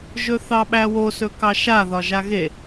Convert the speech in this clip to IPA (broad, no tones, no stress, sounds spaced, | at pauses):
ʒ ɵ θ ɑ ɓ æ w o s ɵ k ɑ ʃ a ð ɒ ʒ a ɣ e